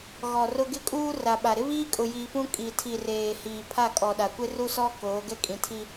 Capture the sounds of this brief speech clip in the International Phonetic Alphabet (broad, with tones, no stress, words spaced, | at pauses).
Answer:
ɣɔ˨rʊ˦ ɡɪ˦kʼuː˦ ra˨ɓa˨ ɾɪ˦βiː˦ kʼʊ˨jiː˨pũ˦ kʼi˨tʰi˨reː˨ hiː˨ pʰa˦˨kʼɔ˨ɗa˨kʷɪ˦ ru˦sɔ˦ koː˨˦ɡɛ˦kʼĩ˨tʰi˦